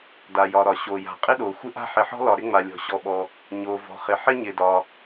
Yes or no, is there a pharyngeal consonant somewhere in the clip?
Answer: yes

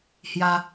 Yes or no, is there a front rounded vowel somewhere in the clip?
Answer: no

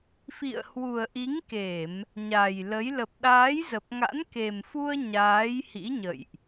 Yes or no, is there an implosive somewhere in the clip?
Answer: yes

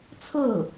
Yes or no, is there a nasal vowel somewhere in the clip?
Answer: no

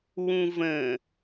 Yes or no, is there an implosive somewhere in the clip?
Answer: no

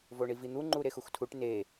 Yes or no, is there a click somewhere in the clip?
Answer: yes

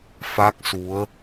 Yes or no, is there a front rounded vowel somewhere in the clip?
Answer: no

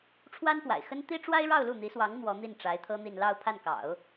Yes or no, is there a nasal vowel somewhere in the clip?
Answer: no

